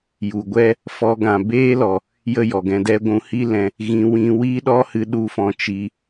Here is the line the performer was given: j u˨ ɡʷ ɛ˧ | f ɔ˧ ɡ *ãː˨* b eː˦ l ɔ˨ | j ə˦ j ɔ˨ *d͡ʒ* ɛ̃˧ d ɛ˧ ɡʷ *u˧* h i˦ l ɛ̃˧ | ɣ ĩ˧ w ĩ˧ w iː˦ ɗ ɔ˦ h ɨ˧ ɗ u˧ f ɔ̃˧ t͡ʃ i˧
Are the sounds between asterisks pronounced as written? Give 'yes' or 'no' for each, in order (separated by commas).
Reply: no, no, no